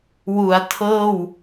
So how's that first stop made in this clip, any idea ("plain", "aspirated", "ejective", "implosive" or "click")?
aspirated